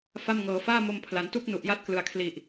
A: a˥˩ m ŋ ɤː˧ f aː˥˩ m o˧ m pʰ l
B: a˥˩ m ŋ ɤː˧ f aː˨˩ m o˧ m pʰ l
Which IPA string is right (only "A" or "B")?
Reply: A